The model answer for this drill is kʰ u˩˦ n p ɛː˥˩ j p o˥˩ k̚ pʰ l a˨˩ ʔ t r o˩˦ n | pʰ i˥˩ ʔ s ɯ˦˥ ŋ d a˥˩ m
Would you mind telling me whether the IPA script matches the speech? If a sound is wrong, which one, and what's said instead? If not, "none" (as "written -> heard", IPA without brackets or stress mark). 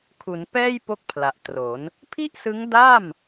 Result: none